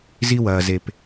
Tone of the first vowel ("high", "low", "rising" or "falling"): high